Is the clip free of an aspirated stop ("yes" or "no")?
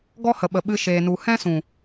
yes